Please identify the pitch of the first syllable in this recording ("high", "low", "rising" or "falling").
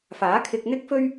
rising